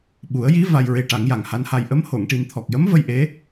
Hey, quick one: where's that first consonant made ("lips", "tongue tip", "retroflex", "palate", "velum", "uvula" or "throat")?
lips